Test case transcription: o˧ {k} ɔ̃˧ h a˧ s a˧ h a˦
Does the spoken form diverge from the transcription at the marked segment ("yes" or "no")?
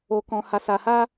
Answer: no